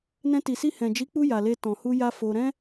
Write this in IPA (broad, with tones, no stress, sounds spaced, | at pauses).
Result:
n ɛ̃˧ t i˨ s i˧ h ɛ̃˨ d͡ʒ i˨˦ k͡p u˧ j a˨ l e˧ t ɔ̃˨ h u˧ j a˦ f o˧ ɾ ɛ̃˦